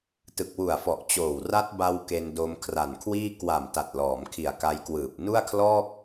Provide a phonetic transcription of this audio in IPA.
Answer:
t ɯ˨˩ k̚ w u˨˩ a̯ f ɔ˨˩ ʔ t͡ɕ oː˨˩ w r a˦˥ t̚ b a˧ w k e˧ n d o˧ m kʰ r a˨˩ n kʰ w iː˥˩ k w a˨˩ m t a˨˩ t̚ l ɔː˩˦ m kʰ i˨˩ a̯ k a˧ j k w ɯː˨˩ p̚ n u˥˩ a̯ kʰ l ɔː˥˩ k̚

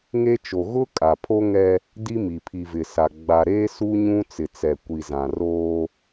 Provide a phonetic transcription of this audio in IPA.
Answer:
ŋ e˦ t͡ʃ o˨ ɣ ʊ˦ kʼ a˨ pʰ o˦ ŋ ɛ˦ | d i˦ m i˨ pʰ i˨ v ɪ˨ s a˨ ɡ͡b a˨ ɾ eː˦ s u˦ ɲ ũ˦ t͡s ɪ˨ t͡s ɛ˨ kʷ i˨ z ã˨ r oː˦

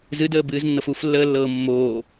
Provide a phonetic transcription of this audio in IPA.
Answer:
z ɨ d əː b ɨː z nː ɤ f u f lː əː lː ɤː mː oː

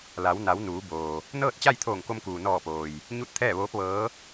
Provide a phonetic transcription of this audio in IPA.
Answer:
l a˩˧ w n a˩˧ w n uː˩˧ b oː˩ | n ɤː˥˨ t̚ t͡ɕ a˥˨ j t̪ʰ oː˧˩ ŋ k o˧ m k uː˩ n ɔː˧˩ p oː˩ j | ɲ u˥˨ t̚ t̪ʰ ɛː˥˨ ʋ oː˧˥ p̚ ʋ ɤː˧˥

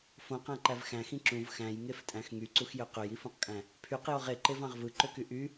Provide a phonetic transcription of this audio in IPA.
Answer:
f õ q æ̃ ǃ æ v x æ̃ x ĩ ǁ ũ v x æ̃ j ŋ e f tʼ æ̃ x ŋ y ǀ u x j ø q ø j i f ũ q kʼ æ̃ | pʰ y q j o ʁ e ǃ e v ɑ̃ ʁ v ɯ ǃ ø k y ʔ y

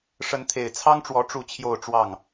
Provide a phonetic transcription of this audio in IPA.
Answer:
ʂ ə˨˦ n t̪ʰ e˨˩ ɪ̯ t͡sʰ ɑ˦ ŋ ʈ͡ʂ w ɔ˨˦ ʈ͡ʂ u˥˨ t͡ɕʰ j o˥˨ ʊ̯ ʈ͡ʂ w ɑ˥˨ ŋ

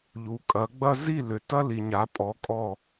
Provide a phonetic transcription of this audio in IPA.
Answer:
ʎ u˩˧ kʼ ɐ˩˧ ɡ͡b ɐ˦ z i˥˨ l ʏ˩ t ɐ˦ l i˩ ɲ a˩˧ pʼ ɔ˩˧ kʼ ɔ˧˩

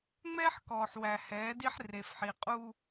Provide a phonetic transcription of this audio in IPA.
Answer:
ŋ͡m ɛː˦ ħ k ɔː˨ ħ w æ˨ h ɛː˨˦ d i˦ ħ r e˨ f ħ i˨ qʼ u˦

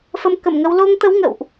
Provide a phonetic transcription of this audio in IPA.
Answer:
f ə˧ m k ə˧˩ m ŋ ə˧ w l o˧ ŋ t̪ ə˨˦ w ŋ ə̰˧˨ w ʔ

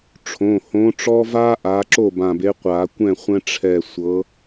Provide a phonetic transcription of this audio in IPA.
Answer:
ʈ͡ʂʰ õ˩˧˩ h õ˨˦ ʈ͡ʂ ɔ˦ v a˦ ʔ a˨˦ ǁ o˥˩ b ã˧˩ b e˨˦ qʷ a˨˩˦ kʷ ɛ̃˥˩ χʷ ɛ̃˦ ʈ͡ʂʰ ɛ˧˩ sʷ ɤ˨˦

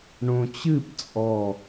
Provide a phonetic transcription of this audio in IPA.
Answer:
ɳ õ t͡ɕ ɨ p t͡sʼ ɔ

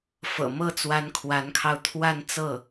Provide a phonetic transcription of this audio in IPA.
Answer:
f ɤ̰˨˩ m ɤ˥˩ t͡s w a˧˥ n kʰ w a˧˥ n kʰ ɑ˧ ʊ̯ t̪ʰ w a˥˧ n t͡s ɤ˥˩

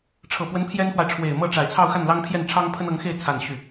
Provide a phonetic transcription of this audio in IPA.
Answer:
ʈ͡ʂʰ ɤ˨˩ p w ə˧˥ n pʰ j ɛ˥ n f w a˨ ɪ̯ ʈ͡ʂʰ w e˨˩ ɪ̯ m ɤ˥˩ ʈ͡ʂ a˨˩ ɪ̯ t͡sʰ ɑ˥˧ ʊ̯ x a˥˩ n l ɑ˥ ŋ pʰ j ɛ˥˩ n ʈ͡ʂʰ ɑ˥ ŋ pʰ ə˥ n ɤ˧˥ ŋ x e˥˧ ɪ̯ t͡sʰ a˥˧ n ɕ y˥˩

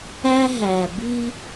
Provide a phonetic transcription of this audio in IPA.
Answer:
æ˦ ɦ æ˨ b i˦

